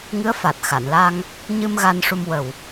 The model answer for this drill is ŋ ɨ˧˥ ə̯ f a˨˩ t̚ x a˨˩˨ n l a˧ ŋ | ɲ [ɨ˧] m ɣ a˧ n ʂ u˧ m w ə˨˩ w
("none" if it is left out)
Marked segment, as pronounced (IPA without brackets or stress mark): ɨ˧